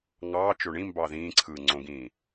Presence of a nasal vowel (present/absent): present